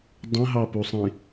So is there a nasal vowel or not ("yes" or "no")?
yes